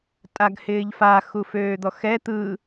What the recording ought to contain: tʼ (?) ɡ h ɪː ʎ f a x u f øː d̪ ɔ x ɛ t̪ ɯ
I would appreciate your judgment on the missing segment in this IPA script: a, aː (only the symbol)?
a